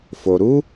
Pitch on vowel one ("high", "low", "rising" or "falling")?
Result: low